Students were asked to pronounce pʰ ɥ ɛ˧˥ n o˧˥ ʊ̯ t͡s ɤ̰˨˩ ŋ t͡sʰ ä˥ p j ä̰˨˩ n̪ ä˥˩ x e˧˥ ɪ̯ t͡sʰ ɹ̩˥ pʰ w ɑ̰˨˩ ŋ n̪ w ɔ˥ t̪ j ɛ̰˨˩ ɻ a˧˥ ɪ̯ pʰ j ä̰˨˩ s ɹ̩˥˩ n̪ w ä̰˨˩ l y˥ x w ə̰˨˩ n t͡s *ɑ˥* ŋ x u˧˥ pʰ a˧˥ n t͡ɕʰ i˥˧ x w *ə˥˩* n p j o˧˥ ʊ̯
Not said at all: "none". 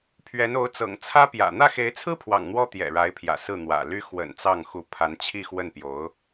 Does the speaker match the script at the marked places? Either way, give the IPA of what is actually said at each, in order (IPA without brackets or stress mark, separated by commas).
ɑ˥˩, ə˥˩